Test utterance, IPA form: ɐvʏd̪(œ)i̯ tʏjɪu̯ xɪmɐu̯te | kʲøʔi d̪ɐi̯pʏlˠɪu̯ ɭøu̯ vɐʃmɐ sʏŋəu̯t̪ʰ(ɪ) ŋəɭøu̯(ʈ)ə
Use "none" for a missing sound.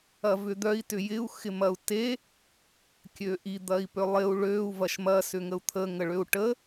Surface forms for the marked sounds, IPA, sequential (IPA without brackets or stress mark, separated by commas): œ, ə, ʈ